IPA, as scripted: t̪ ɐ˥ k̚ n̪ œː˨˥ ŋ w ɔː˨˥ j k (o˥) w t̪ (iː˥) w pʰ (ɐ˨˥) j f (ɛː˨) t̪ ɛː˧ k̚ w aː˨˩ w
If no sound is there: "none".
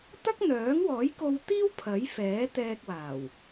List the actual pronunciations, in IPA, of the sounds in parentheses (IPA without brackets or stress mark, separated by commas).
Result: o˧, iː˥, ɐ˨˥, ɛː˨˥